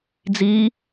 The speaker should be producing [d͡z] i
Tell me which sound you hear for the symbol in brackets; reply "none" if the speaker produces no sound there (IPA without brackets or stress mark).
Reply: d͡z